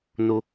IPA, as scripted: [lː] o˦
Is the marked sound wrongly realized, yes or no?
yes